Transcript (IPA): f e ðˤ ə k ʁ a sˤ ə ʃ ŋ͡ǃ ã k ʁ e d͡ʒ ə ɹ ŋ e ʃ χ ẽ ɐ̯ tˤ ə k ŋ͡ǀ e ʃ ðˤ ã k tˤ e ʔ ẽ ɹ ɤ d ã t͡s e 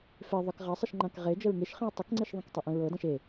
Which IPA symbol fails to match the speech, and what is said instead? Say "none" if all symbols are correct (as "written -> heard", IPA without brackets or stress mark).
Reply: t͡s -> ʃ